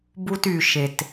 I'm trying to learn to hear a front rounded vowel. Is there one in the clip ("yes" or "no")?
yes